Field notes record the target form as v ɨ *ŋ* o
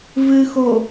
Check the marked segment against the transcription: incorrect: x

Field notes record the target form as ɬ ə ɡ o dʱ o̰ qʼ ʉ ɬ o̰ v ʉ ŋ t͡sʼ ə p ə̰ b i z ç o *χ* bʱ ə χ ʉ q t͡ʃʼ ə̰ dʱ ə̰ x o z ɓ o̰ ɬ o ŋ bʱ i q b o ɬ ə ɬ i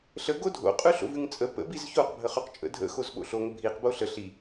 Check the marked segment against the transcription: incorrect: q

